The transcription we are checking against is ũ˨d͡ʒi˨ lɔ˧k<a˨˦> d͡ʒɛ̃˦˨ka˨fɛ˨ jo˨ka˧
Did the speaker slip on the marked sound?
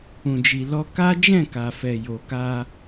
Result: yes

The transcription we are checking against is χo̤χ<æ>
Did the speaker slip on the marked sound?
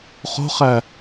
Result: no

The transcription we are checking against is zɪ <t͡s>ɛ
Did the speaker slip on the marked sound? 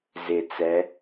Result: no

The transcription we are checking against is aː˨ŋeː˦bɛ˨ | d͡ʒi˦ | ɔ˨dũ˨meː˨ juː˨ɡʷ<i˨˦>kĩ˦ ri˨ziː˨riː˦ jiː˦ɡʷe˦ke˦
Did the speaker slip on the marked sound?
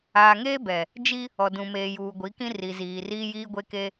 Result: no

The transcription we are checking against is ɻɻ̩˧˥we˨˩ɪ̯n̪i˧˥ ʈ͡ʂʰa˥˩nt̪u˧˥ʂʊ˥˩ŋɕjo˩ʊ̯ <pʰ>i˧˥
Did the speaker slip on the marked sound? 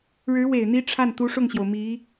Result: yes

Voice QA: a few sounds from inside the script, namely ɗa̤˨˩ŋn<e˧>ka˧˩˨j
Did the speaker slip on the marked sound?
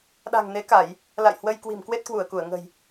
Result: yes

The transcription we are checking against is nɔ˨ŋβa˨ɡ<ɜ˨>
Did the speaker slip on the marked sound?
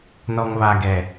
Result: yes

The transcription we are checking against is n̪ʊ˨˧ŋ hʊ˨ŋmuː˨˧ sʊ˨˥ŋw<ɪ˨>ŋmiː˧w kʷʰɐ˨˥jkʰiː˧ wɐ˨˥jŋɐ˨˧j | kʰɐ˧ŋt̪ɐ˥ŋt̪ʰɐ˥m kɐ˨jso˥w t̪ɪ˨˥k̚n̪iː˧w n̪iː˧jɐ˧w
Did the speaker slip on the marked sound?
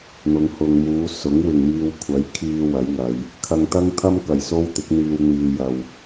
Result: no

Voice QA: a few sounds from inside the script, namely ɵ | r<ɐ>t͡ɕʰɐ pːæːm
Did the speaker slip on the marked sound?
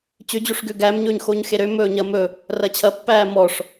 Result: no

